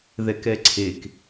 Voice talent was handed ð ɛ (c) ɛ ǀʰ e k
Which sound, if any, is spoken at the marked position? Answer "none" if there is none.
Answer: k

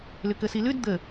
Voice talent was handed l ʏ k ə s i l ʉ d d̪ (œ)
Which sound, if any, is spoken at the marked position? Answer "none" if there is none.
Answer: ə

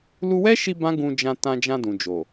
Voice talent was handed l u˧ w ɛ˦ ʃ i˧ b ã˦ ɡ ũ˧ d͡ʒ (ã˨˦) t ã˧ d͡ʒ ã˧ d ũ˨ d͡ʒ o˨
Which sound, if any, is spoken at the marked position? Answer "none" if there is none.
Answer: ã˧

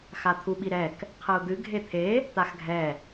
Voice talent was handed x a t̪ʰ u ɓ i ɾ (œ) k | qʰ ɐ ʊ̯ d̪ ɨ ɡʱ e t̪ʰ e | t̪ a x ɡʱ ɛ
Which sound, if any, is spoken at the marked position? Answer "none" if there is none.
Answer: ɛ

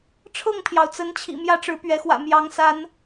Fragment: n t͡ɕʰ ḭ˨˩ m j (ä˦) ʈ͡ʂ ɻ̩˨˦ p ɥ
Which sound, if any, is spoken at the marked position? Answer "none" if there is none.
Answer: ä˦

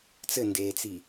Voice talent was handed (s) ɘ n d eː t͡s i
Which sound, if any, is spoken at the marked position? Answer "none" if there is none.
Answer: t͡s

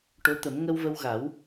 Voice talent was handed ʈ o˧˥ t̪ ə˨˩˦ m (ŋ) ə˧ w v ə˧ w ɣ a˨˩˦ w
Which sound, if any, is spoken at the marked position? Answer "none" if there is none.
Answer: ŋ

